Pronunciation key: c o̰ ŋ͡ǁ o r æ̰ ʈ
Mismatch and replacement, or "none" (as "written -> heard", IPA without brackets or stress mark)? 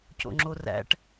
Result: none